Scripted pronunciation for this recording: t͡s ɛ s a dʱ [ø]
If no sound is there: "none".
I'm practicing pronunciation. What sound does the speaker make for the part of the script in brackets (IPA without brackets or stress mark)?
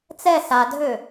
ø